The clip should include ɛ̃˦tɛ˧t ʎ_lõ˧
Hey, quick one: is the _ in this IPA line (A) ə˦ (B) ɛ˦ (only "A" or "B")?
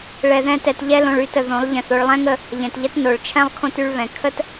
B